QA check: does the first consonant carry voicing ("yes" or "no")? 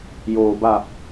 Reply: yes